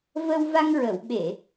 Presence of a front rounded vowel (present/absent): absent